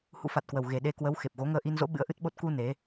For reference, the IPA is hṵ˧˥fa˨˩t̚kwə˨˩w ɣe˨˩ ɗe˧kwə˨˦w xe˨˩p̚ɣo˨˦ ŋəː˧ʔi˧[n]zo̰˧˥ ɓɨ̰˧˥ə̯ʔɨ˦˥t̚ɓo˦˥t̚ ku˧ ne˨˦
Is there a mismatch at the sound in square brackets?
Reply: no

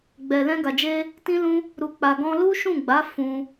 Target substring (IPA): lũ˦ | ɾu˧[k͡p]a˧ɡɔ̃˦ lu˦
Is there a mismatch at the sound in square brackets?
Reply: no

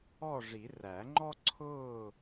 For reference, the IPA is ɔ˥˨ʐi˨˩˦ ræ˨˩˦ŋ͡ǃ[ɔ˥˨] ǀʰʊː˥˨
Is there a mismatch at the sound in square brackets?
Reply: yes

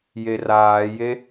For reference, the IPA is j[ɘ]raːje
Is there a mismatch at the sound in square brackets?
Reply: yes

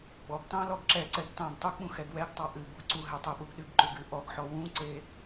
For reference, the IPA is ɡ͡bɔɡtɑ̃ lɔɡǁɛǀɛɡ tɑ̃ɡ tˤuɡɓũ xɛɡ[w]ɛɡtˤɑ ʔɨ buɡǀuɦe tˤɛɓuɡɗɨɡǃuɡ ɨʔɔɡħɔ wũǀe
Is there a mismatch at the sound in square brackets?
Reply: no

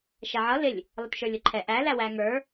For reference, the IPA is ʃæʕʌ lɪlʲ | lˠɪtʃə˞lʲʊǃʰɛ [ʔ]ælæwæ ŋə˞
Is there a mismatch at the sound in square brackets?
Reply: no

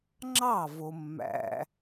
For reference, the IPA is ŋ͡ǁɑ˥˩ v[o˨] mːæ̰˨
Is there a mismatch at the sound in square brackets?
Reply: no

